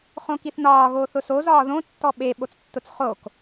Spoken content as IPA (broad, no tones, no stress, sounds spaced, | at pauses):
χ õ k i θ n ɒː ɣ oː θ ʊ s o z ɒː ð õ tː ɔ ɓ e ɓ o t͡s tː ʊ t͡s χ o k